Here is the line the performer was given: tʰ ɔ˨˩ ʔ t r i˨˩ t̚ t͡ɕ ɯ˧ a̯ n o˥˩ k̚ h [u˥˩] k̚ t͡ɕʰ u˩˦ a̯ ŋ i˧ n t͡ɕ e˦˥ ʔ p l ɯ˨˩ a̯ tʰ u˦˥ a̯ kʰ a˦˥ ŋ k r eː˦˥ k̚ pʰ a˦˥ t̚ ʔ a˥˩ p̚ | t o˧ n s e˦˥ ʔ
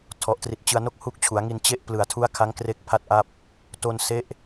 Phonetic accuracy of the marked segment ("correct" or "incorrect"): incorrect